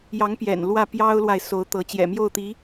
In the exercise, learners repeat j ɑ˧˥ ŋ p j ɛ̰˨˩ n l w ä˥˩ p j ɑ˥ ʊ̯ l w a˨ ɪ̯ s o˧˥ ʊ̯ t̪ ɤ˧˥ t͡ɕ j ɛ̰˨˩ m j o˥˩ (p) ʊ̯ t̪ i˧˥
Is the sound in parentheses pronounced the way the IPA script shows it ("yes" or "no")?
no